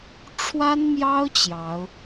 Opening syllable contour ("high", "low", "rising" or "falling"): high